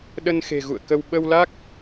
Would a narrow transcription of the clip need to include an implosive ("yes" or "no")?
yes